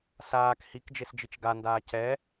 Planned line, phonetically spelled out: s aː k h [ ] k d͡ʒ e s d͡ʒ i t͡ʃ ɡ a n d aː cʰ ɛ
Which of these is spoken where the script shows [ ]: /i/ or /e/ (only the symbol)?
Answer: i